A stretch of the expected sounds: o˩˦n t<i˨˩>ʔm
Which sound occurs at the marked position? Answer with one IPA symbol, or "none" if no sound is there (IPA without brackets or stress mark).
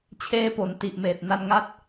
i˨˩